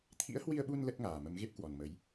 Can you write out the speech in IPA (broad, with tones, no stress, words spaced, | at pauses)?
t̪ʰḭ˧˥ə̯hwi˧ə̯ɓu˧n lə˦˥t̚ŋaː˨˩ mə˨˦mɣe˦˥p̚kwɔ˨˩n mə˨˦j